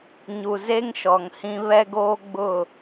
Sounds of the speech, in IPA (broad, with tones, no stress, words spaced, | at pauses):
ɲu˨ze˦ŋʃɔ˨ŋhĩ˦ βɛ˦ɡoː˦ ɡ͡bʊ˦˨